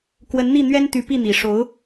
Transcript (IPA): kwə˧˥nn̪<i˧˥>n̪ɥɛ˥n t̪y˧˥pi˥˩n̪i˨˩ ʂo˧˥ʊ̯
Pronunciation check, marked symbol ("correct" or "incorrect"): incorrect